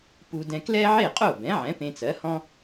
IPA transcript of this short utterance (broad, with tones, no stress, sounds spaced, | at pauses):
p u˧ d ɛ̃˧ k l ɛ˥ ʕ e˥˩ qʼ o˥˩ b ɛ̃˩˥ ʕ ɛ̃˩˥ p ẽ˧ t͡s ɜ˩˥ h ɔ̃˥